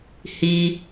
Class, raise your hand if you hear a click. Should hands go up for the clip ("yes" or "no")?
no